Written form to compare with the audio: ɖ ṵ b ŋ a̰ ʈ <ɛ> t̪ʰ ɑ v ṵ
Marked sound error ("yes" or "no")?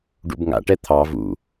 no